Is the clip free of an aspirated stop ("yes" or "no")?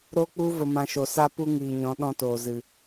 yes